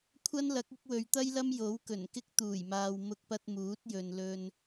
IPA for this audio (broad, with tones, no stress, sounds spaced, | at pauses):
kʷʰ ɐ˥ n l ɐ˨˥ k̚ ɪ˨˥ k̚ w ɵ˨ ɥ t̪ ɐ˥ j l ɐ˥ m j o˨˥ w k ɵ˨˩ n k ɪ˥ k̚ t̪ uː˨˩ j m aː˨ w m ʊ˧ k̚ p ɐ˧ t̚ m uː˨˥ t̚ j ɵ˨ n l ɵ˧ n